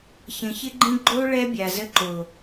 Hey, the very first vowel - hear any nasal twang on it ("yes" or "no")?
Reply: yes